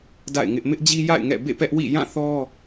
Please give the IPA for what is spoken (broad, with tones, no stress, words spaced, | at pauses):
da̰˦˨ɪ̯ŋɪ˦ʔ mɪ˦ʔd͡ʑi˦ ja̰˦˨ɪ̯ ŋɛ̰˦˨ bḛ˦˨pɛ˦ʔ wḭ˦˨ jã˦˨θɔ˦